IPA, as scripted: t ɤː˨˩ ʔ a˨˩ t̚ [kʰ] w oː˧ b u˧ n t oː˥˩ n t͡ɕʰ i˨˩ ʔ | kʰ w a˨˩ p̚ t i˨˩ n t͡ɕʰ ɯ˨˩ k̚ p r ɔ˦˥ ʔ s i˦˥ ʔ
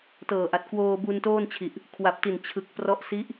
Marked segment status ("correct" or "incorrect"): incorrect